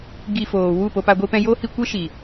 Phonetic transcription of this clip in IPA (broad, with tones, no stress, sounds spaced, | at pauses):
ɡ i˧ f oː˨ w u˦˨ p o˧ p a˧ ɡʷ i˧ p ɛ̃˧ j o˦ h i˧ kʷ e˦ ʃ i˨